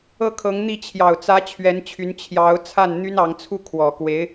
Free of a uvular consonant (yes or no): yes